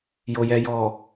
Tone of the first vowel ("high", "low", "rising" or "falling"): low